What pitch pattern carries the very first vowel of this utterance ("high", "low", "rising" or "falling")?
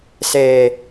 low